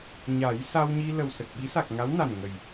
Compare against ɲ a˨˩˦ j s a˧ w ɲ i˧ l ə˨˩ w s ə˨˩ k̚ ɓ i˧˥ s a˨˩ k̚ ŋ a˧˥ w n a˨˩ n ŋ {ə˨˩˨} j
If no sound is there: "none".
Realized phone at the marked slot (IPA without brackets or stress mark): ə˨˩